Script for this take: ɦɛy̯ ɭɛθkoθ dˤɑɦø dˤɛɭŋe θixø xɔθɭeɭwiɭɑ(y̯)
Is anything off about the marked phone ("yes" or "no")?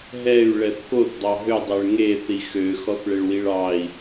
yes